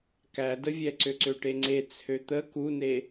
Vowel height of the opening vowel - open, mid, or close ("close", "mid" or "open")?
open